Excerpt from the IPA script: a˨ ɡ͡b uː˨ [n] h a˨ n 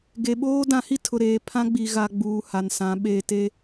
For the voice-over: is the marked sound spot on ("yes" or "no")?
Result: no